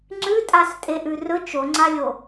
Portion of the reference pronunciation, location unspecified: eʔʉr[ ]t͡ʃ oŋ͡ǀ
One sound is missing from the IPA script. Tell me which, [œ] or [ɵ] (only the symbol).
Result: ɵ